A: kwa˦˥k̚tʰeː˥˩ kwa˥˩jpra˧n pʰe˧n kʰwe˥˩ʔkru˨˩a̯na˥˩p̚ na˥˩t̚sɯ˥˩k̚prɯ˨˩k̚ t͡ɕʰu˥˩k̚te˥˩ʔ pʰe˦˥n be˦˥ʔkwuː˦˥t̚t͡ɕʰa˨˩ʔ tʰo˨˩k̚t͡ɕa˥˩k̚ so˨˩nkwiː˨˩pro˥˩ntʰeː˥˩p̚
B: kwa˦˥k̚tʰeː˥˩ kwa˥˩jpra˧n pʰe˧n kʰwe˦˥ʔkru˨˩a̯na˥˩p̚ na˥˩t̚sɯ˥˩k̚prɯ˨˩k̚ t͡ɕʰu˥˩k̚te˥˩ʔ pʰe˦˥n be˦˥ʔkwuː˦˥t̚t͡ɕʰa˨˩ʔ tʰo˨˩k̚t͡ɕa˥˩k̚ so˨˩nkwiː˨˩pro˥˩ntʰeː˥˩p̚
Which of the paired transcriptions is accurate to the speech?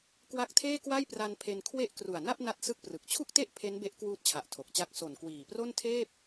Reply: B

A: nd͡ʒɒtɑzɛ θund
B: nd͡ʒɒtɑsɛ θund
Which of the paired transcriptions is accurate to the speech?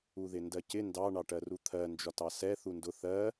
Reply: B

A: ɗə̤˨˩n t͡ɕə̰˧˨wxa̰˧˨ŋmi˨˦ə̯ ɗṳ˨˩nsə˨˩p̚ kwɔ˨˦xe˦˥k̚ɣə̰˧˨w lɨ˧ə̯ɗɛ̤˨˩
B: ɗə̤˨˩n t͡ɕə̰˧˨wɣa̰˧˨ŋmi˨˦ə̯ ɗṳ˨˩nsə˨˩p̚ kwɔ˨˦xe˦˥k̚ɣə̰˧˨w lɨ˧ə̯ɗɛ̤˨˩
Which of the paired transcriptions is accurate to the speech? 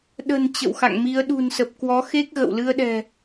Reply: A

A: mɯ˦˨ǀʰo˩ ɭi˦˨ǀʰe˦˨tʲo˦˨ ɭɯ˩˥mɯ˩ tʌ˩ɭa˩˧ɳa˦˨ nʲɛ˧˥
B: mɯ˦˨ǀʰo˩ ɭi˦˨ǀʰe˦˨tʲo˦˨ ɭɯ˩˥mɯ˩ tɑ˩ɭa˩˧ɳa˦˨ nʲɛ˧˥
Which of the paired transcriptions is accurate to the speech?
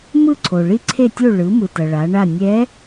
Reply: A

